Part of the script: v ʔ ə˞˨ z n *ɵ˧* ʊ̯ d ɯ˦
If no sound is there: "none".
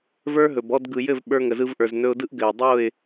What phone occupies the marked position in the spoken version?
ɵ˧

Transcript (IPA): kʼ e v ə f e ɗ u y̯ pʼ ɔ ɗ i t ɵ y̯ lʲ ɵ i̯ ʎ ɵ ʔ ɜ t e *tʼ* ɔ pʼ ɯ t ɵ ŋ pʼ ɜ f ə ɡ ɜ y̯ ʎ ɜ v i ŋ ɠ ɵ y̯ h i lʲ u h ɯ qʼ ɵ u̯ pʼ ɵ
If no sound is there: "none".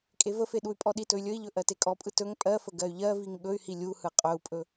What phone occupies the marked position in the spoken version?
kʼ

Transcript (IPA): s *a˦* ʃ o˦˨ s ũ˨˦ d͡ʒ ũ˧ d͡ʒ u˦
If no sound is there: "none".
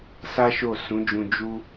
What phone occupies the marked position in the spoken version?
a˦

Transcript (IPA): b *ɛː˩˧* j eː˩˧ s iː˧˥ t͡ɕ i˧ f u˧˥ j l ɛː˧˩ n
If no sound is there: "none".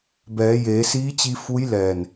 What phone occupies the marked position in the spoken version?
ɛː˩˧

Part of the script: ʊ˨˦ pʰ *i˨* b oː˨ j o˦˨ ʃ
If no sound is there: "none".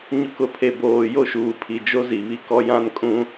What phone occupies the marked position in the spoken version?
e˨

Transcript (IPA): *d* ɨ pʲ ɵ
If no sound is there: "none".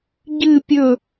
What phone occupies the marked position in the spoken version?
ɟ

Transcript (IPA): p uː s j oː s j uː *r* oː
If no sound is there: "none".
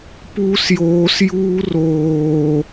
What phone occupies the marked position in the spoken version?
r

